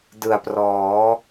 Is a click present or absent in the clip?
absent